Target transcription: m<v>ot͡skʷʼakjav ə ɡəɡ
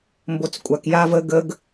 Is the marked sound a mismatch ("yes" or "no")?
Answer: yes